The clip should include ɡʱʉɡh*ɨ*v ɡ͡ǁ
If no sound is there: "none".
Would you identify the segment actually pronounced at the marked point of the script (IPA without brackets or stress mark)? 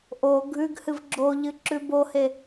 ɨ